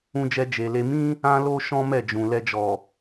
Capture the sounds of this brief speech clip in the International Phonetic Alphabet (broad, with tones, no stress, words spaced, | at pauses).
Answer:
ũ˧d͡ʒɛ˧ d͡ʒe˨le˧ mĩ˦ | ã˦lo˦ ʃɔ̃˦mɛ˦˨d͡ʒũ˨ lɛ˧d͡ʒɔ˨